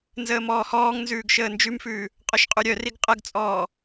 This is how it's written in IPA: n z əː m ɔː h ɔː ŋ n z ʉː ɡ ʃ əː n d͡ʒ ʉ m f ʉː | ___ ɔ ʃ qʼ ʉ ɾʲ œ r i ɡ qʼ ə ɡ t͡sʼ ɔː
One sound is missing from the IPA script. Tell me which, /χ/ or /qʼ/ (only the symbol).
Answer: qʼ